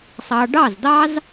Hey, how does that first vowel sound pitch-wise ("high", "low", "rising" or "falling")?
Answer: low